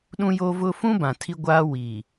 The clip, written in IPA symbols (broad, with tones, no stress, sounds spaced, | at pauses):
ɗ ũ˦ j o˦ v ʊ˦ f ũ˦ b ã˨ tʰ i˦ ɡʷ aː˦ w i˨